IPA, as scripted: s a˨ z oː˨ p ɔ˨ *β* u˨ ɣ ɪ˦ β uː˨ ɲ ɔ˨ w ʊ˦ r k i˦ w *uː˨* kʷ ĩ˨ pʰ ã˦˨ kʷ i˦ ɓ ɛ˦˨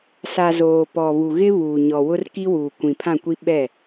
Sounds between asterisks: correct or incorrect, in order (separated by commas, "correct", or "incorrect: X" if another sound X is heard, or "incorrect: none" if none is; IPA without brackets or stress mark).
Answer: correct, correct